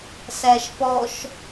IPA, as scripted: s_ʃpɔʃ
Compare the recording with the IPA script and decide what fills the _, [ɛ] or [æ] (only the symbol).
æ